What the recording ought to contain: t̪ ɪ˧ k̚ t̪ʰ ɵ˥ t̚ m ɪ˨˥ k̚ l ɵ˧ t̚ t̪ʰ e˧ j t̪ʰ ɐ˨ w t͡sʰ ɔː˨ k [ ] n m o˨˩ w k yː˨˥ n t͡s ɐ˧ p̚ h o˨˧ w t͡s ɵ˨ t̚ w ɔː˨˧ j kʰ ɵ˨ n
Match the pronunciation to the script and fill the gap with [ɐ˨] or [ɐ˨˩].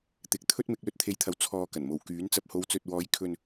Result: ɐ˨˩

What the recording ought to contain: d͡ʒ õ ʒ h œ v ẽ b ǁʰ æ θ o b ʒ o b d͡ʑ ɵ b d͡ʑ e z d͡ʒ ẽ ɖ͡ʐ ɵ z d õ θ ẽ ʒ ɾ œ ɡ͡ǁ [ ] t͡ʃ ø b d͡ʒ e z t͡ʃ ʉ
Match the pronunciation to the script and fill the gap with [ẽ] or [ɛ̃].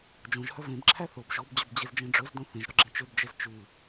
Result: ẽ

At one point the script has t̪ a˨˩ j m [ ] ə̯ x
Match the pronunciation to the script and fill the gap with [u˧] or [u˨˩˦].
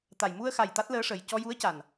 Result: u˧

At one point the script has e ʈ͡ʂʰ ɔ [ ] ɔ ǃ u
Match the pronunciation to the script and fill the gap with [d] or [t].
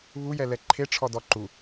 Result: d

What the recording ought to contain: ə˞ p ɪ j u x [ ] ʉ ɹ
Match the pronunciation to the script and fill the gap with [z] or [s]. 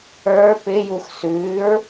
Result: s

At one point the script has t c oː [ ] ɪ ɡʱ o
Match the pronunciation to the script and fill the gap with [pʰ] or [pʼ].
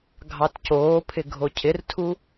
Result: pʰ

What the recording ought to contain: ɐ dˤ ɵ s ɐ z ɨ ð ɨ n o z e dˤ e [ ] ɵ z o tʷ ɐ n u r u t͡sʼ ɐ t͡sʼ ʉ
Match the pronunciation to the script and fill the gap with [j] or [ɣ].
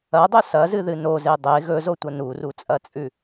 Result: ɣ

